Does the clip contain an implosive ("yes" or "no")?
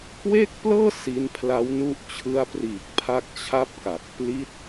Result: no